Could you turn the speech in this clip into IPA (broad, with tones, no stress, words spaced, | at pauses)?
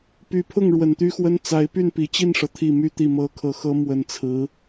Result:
py˨˩pʰʊ˥˩ŋ ɻwə˨˩nt̪y˥xwə˥n t͡sa˧˥ɪ̯ py˥˩npi˨˩t͡ɕi˥˩nʂɤ˩ t̪ʰi˨˩my˧˥t̪i˨˩ mɤ˧˥ kʰɤ˧˥xɤ˥ mwə˨˩nt͡sʰɹ̩˧˥